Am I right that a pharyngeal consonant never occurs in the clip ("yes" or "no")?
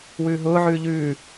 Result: no